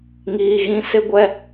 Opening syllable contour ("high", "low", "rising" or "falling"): low